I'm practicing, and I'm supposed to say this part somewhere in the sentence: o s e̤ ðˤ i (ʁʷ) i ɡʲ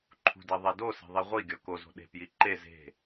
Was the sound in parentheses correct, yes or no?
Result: yes